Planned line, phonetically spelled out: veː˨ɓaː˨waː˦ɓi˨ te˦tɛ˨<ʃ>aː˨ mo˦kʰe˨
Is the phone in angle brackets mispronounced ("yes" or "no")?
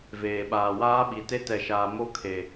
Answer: no